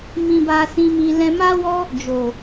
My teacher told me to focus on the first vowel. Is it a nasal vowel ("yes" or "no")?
yes